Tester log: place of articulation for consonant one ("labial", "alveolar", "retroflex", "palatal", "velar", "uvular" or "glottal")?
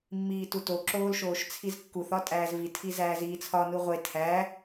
labial